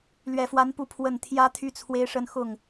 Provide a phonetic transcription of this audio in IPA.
l ɥ ɛ˨˩ f w a˧˥ n p u˧˥ pʰ w ə˨˩ n t̪ʰ j ä˧˥ t̪ʰ y˥˩ t͡sʰ w e˥ ɪ̯ ʂ ə˥˧ n x ʊ˥˩ ŋ

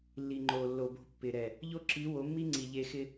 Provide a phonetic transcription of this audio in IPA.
lː i˨ ŋ͡ǃ o˨ lː o˨ b o̤˦˨ pː ɪ˨ ɾ ɛ˨ | ʎ o˦ ǁ i˨˦ w o˨˦ mː i˦ ŋ͡ǀ i˨ ʎ e˦ x ɪ˦

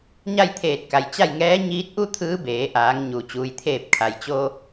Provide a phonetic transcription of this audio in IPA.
ɲ a˥˨ j t̪ʰ eː˧˩ t̚ k a˩ j t͡ɕ a˥˨ j ŋ ɛː˧˥ ɲ iː˧˥ t̚ ʔ u˥˨ t̪ʰ ɯː˧˥ b eː˩˧ ʔ aː˩˧ ŋ ɲ u˩ t͡ɕ uː˩ j t̪ʰ eː˧˩ p̚ kʰ a˩ j t͡ɕ o˧

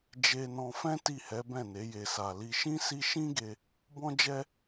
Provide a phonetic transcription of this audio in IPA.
d͡ʒ e˧ n ɔ̃˧ f ɛ̃˦ t i˦˨ h ɛ˨˦ b ɛ̃˦˨ n e˨˦ j e˧ s a˧ l i˧ ʃ ĩ˦ s i˦ ʃ ĩ˦ ɡ e˧ | b ɔ̃˦ d͡ʒ ɛ˦

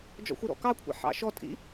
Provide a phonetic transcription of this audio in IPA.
d͡ʒ ɔ̰ xʷ ɪ ɾ ɔ̰ k ɑ kʷʰ ɑ̰ ħ ɑ̰ ʃ ɔ tʼ ḭ

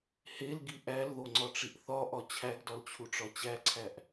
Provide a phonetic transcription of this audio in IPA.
h e l ɡ i ʔ æ l ð o ŋ͡ǀ ɒ ʈ͡ʂ i ʔ θ ɒ ʔ ɒ t͡ɕʰ æ ɡ d ɒ l t͡ɕʰ u ʈ͡ʂ ɒ t͡ɕ æ ǀʰ æ ʔ

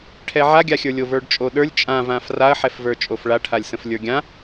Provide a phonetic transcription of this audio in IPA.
ʈʰ ɛ ʕ a ɡʲ a xʲ ə˞ lʲ o v ə˞ ɖ t͡ʃʼ o ɗ ə˞ lʲ t͡ʃʼ ã v ã f r a ɐ̯ ħ ɛ f v ə˞ t͡ʃʼ o f ɭ a ʈʰ a lʲ s ə̃ f lʲ ə˞ ɡʲ ã

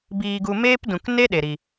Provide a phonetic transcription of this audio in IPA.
b iː˧ ɡ u˧ m eː˦ p d ũ˨ k n e˦ ɗ e˨ ɾ i˨

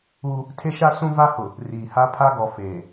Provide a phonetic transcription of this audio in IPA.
uː˦ | tʰ e˦ ʃ a˦ s ũ˦ v a˦ h ʊ˨ | r iː˨ h a˦ pʰ a˦ ɡ ɔ˨ f eː˨

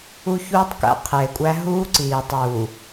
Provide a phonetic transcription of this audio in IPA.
u˦ ç uː˦ tˤ k æ̰˦ qʰ eː˨ kʷʼ æ˦ ɦ uː˦ ǀ iː˨ tˤ u˨

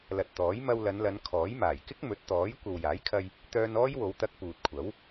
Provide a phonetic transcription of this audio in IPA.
l ɐ˨ t̚ t̪ ɔː˨˥ j m ɐ˧ w l ɐ˨˧ n l ɐ˨˧ n kʰ ɔː˨˥ j m aː˨˩ j k ɪ˥ k̚ m ɵ˨˥ t̚ t̪ ɔː˨˥ j kʷ ɐ˨ w j aː˨˥ j kʰ ɐ˧ j | t̪ œː˧ n ɔː˥ j w o˨˧ w t̪ ɐ˧ k̚ p uː˨ t̚ kʷʰ ɐ˨˥ w

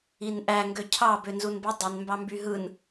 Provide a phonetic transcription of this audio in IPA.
i n ʔ æ ŋ ɡ ø cʰ ɑ b ø n z u n b o dˤ e n m b ɑ m b y ɦ ɯ n

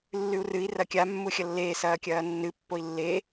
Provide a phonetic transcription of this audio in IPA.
lː ʉ u̯ r ɨ i̯ r ɐ kʲ a mː u xʲ ɐ lː eː s ɐː kʲ ɐː nː ɨ pː o i̯ lː e

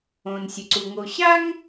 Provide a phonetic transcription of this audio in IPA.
õː˩ n sʲ ɨ˩ ǀ u˩ ŋ o˩ ɕ a˥ ŋ

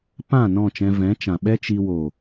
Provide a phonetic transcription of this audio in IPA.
p ã˦˨ n ɔ̃˦˨ t͡ʃ ɛ̃˧ v ɛ̃˨˦ t͡ʃ ã˨ ɓ ɛ˦ t͡ʃ i˧ w o˨

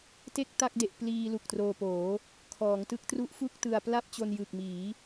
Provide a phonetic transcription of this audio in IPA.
t e˥˩ k̚ t a˥˩ k̚ d e˨˩ ʔ p l iː˧ l u˨˩ k̚ t r oː˧ p oː˩˦ | kʰ ɔː˩˦ ŋ t ɯ˥˩ k̚ t r u˦˥ ʔ f u˥˩ k̚ t ɯ˧ a̯ p l a˥˩ p̚ t͡ɕ o˧ n j ɯ˨˩ k̚ m iː˩˦

